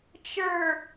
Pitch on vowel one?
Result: low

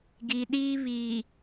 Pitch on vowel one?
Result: low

